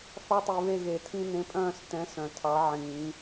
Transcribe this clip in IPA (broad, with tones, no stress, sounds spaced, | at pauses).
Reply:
θ ɑ˦ tˤ i˨ β e˦˨ ɣ e˨˩˦ tʰ ĩ˦ n ẽ˨˥ pʼ œ̃ː˦˨ s t ɛ̃˨˥ s œ̃˨ tʰ ɑ˨˥ ʕ ĩː˨˩˦